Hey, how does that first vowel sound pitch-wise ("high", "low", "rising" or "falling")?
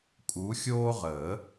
rising